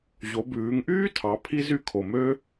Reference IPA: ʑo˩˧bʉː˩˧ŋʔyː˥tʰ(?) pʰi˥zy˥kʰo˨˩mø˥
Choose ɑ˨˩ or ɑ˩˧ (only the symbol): ɑ˩˧